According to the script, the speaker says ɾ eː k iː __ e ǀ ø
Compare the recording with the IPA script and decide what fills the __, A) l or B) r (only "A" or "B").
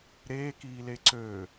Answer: A